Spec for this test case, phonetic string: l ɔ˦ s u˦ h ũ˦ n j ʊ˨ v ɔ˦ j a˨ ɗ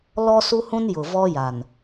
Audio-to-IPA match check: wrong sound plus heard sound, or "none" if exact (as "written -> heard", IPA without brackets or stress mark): ɗ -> n